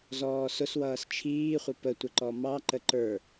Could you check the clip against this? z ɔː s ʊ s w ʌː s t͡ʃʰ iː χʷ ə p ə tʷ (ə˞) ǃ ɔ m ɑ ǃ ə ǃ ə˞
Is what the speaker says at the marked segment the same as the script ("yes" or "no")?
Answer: no